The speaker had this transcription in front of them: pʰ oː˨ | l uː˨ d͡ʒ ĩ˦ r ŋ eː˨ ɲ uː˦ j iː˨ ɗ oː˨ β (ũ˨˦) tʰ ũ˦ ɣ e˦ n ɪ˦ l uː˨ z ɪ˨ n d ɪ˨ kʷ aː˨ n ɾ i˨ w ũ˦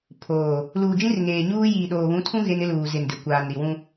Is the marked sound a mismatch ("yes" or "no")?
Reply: no